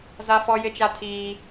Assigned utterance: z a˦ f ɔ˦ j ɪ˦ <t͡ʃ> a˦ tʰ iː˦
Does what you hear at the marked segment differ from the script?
no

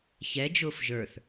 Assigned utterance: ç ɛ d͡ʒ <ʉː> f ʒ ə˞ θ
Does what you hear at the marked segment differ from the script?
yes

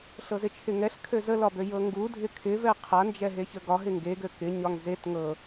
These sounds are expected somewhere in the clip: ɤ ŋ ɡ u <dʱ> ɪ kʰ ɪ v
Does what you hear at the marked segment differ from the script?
no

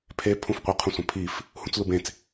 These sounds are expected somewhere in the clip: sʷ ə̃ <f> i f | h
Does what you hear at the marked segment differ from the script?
yes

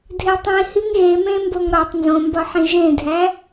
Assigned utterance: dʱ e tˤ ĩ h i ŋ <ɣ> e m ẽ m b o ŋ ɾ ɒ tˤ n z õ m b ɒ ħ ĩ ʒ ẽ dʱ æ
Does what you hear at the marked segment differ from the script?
no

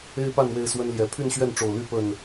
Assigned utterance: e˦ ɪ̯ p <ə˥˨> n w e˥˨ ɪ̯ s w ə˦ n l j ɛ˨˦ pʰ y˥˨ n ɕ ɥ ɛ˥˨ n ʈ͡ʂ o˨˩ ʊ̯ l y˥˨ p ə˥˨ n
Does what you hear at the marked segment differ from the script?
yes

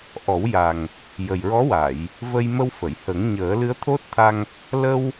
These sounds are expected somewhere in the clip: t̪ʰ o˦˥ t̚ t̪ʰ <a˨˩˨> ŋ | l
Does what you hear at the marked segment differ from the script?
yes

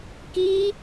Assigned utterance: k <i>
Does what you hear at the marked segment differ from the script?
no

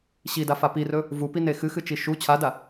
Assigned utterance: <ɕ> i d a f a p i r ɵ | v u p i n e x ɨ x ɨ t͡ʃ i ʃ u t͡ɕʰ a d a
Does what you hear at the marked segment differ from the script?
no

